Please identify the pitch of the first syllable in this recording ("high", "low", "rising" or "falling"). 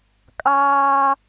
high